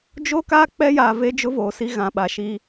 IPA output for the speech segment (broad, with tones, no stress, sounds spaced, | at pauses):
d͡ʒ o˦ k a˦ k͡p ɛ˦ j aː˨ v e˦ d͡ʒ ʊ˦ v oː˨ s i˦ ɣ ã˨ ɓ a˨ ʃ i˦